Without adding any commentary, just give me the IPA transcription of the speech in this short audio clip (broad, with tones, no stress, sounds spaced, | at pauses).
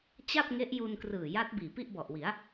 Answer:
t͡ɕ a˥˩ p̚ ŋ e˦˥ ʔ j u˧ n k r ɯː˨˩ j a˦˥ t̚ b iː˨˩ p i˥˩ ʔ b ɔ˨˩ ʔ w i˩˦ a̯